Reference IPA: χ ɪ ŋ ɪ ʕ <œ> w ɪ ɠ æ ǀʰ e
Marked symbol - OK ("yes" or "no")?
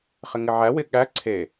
no